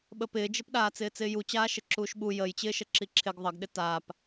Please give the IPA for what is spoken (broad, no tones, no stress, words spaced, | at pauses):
ɓəpɪːd͡ʒɘpɗaː t͡sɪːt͡sɪːjut͡ɕaː ʃɘǁuːʃɓu jəjt͡ɕɪːʃəǁi ǁʰɪɡ ðˤəɡɗɪ taːp